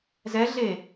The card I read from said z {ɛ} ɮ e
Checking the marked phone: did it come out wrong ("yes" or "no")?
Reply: no